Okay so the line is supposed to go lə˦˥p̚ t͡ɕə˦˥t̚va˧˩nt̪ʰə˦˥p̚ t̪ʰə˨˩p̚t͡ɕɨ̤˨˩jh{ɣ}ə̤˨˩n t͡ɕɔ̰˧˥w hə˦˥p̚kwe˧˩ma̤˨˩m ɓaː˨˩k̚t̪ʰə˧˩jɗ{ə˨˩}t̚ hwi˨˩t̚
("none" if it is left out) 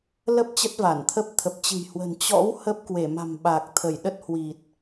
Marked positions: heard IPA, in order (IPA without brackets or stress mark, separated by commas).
w, ə˦˥